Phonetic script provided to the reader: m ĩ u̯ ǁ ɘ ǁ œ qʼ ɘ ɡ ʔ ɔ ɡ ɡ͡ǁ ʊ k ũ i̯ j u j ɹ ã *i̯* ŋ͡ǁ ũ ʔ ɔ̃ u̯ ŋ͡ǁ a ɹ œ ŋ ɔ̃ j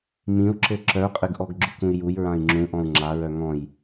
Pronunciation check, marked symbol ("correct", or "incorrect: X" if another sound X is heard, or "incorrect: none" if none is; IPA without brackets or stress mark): correct